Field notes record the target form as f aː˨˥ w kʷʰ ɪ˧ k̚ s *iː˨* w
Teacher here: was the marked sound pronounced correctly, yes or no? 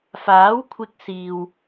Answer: yes